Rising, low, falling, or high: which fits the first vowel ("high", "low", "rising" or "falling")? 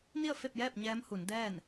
falling